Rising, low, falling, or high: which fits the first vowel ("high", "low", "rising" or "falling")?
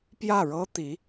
falling